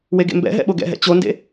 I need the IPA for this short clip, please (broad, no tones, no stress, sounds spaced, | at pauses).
w e ɡ ḛ m b ɛ̰ ɦ ɛ̰ ɓ o ɡ ɛ̰ ɦ ɛ̰ t͡ɕ o n d ḛ